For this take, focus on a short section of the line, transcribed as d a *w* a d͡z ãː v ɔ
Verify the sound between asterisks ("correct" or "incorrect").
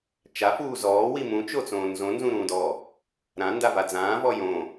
incorrect